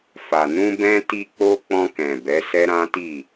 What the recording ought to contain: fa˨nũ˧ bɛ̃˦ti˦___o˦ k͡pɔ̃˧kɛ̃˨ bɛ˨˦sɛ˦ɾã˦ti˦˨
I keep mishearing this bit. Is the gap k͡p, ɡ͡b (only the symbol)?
k͡p